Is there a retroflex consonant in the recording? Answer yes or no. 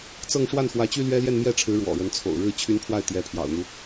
yes